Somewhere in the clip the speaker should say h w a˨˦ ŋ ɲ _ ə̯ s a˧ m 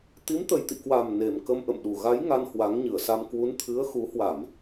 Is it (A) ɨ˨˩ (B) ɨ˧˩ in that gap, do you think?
B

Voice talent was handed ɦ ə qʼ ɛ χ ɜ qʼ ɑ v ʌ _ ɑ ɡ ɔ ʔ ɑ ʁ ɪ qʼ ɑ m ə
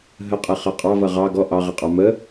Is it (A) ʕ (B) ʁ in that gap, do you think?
B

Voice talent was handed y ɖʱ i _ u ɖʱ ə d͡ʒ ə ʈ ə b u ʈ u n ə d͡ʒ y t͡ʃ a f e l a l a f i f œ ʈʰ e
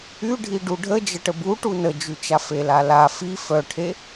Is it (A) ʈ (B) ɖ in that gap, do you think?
B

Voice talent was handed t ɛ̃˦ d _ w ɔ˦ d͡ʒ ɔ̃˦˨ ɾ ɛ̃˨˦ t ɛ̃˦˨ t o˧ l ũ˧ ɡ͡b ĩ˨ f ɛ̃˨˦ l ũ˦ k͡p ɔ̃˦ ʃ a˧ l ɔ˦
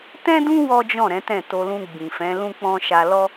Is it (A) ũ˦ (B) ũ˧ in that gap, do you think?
A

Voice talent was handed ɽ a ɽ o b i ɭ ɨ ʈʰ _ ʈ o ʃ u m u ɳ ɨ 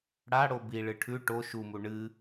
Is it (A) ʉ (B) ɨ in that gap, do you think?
A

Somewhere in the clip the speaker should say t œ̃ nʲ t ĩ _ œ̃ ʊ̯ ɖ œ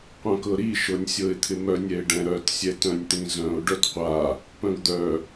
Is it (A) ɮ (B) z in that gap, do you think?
B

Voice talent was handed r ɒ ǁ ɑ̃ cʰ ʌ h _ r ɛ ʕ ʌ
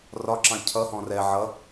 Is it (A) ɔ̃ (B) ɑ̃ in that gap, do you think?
A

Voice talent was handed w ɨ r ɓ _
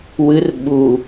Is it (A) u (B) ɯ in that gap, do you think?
A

